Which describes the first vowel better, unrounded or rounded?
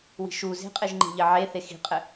unrounded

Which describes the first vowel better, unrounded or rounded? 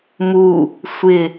rounded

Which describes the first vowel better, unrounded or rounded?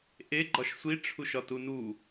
unrounded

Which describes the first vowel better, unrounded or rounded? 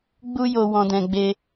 rounded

